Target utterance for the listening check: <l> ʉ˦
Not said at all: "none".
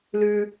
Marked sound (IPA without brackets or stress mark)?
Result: l